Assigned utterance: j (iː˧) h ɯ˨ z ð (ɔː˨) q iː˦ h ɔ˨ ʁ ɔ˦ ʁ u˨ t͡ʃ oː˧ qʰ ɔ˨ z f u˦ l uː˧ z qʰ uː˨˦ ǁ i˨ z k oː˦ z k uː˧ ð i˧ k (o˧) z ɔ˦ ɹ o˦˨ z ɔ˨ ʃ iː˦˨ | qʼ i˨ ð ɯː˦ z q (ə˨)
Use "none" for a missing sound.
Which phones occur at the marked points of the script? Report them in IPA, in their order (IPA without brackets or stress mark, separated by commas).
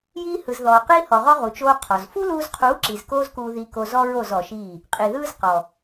iː˧, ɔː˨, o˧, ɔ˨